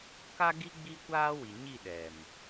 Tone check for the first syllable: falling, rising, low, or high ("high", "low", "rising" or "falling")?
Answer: high